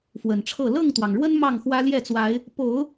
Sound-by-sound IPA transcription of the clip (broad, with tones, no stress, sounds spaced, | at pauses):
f w ə˨˩ n ʈ͡ʂʰ ɤ˥˨ l ɤ˥˨ ŋ t̪ w ɑ˩ ŋ ɻ w ə˦ n m ɑ˥˨ ŋ x w ä˦ l j ɛ˥˨ t͡s w a˨˦ ɪ̯ | p o˨˦ ʊ̯